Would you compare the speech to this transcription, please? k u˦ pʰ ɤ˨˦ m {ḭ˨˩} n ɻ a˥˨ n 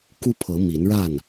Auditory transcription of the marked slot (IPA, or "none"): i˨˦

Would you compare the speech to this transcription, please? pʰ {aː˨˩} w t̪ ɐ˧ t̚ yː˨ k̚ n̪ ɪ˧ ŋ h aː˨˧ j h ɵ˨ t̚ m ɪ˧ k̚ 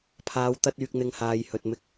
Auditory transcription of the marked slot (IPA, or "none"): aː˨˧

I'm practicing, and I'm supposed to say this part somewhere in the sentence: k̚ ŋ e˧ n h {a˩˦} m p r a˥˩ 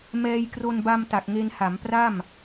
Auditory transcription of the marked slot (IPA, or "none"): a˩˦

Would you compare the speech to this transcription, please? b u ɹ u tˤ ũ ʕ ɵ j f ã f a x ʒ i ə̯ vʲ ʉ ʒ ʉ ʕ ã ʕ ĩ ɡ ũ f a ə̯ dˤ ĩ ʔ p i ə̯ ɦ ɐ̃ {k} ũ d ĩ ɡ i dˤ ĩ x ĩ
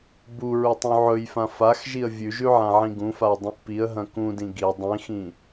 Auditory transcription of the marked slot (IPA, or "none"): k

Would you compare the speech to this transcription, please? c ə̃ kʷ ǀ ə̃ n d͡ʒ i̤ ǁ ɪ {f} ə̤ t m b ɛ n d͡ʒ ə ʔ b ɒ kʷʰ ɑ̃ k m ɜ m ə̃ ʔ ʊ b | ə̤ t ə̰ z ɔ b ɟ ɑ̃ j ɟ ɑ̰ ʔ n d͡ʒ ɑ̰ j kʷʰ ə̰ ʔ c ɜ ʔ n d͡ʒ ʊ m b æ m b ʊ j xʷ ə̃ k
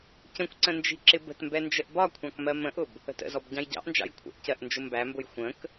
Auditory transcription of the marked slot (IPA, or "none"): b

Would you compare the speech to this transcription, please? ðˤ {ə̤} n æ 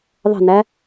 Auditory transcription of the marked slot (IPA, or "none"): ə̤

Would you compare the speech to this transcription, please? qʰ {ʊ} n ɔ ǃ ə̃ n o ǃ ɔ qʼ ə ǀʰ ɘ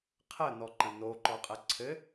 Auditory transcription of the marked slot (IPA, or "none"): ə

